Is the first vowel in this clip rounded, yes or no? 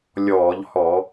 yes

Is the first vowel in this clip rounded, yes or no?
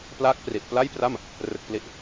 no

